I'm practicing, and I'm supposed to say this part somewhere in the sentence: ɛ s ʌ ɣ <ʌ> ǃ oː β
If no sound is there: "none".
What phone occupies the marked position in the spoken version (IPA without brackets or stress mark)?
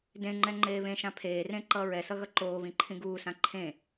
ʌ